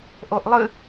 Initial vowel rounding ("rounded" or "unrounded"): rounded